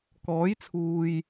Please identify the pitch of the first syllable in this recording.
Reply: rising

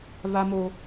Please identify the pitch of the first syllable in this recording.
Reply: high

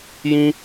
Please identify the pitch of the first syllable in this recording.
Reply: high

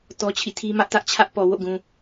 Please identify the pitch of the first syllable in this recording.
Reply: high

